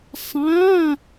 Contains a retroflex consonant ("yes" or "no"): no